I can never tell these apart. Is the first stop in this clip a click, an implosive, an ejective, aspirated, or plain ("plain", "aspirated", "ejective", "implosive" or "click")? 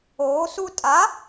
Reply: ejective